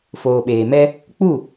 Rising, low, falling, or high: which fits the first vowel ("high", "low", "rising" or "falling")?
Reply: low